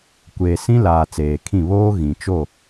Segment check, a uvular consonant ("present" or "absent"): absent